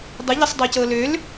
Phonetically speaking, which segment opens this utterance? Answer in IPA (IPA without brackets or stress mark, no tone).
dˤ